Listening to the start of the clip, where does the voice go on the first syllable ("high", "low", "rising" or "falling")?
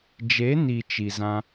rising